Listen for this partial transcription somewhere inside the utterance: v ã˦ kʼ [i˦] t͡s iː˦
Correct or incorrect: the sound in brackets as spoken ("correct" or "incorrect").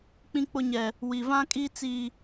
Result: correct